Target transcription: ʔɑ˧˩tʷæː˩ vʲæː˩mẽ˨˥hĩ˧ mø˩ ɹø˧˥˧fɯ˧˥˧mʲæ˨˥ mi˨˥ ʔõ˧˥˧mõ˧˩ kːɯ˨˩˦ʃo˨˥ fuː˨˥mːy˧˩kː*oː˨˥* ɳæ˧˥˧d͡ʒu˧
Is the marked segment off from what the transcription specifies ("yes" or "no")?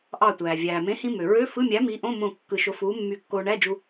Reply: yes